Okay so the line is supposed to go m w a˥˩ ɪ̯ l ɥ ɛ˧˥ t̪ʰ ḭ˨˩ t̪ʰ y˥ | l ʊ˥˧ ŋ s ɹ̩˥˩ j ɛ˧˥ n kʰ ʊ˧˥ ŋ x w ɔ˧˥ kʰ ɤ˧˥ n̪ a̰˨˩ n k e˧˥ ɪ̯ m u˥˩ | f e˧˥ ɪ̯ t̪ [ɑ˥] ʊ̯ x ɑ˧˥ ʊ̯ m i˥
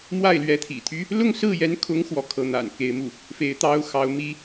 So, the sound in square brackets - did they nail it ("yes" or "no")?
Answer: yes